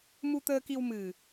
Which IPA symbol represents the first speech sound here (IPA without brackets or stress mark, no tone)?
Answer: m